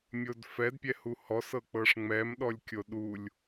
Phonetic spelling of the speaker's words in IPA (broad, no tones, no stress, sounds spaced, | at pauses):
mʲ o d f ɛ d pʲ ɛ h u h ɔ s ɤ k͡p ɤ ʂ ŋ͡m ɛ m ɗ ɔ lʲ kʲ o ɗ u lʲ